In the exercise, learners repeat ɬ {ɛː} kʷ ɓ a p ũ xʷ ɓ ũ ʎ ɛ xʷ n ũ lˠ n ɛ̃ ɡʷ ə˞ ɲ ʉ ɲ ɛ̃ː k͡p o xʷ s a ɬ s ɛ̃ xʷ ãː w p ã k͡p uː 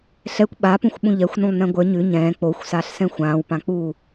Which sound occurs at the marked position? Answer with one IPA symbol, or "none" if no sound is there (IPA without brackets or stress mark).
ɛ